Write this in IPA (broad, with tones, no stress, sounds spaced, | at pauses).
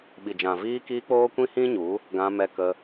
ɓ i˨ d͡ʒ ã˨ v iː˧ k iː˧ k͡p oː˦ kʷ ĩ˦ h ĩ˦ ɲ u˨˦ | ɡ ã˧ m ɛ˧ k ə˧